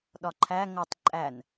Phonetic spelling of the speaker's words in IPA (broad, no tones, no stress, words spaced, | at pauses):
ɗɒǃʰæ ŋotˤ ǃʼæn